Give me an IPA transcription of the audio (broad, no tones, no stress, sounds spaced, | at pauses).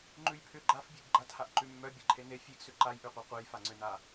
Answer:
ŋ͡ǃ ʉ j pʰ ʏ ɡ͡ǃ a f bʲ e ɡ ɡ͡ǃ a t h a ʔ ǃ ʉ mː œ bʲ ɛ ǃʰ e n e fʲ e ɡ s ʏ ǃ a j ʔ ʉ qʷ a qʷ e j f a ŋ͡ǀ ʏ n a